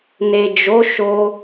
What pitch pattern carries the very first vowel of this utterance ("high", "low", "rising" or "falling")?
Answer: low